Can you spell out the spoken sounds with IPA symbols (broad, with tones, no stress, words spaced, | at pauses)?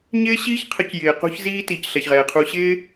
ɲɪː˦ɕiː˦çqʰə˨˦c jɪː˨ qo̤˦çziː˦ tiː˨cɬɛ˨çʁɛː˨qʰu˧ ɕɪː˦